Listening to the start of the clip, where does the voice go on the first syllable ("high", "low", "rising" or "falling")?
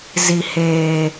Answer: low